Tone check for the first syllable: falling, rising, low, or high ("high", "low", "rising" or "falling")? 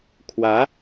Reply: rising